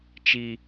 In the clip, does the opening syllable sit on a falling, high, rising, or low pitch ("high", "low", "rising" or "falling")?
high